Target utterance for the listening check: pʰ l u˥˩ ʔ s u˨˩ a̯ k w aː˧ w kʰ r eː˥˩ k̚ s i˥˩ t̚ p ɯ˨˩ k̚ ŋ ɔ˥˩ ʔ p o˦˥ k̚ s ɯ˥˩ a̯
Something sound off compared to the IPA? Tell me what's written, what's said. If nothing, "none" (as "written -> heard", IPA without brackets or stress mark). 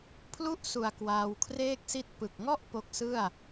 none